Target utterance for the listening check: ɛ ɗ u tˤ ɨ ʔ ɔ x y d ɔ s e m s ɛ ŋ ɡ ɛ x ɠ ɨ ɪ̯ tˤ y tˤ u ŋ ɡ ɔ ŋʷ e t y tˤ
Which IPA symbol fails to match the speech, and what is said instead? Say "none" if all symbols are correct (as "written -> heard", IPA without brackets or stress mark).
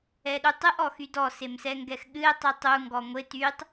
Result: none